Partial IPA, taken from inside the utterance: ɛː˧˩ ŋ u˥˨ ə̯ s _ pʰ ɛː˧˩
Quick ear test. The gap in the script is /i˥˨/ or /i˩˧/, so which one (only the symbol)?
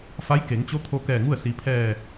i˩˧